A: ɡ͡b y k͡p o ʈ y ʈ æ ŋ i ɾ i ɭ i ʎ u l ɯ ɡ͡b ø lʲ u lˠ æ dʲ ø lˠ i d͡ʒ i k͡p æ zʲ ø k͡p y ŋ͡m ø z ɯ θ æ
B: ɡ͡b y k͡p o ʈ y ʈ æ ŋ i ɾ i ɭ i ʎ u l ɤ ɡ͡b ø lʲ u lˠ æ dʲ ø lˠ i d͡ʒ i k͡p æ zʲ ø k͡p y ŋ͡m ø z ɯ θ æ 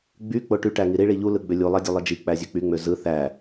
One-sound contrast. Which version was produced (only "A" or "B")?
A